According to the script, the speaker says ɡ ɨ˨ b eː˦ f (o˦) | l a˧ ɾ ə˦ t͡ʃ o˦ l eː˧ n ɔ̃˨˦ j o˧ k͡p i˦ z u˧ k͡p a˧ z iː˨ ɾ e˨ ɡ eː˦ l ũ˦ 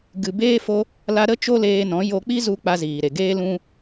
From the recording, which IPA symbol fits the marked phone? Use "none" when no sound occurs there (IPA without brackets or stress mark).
o˦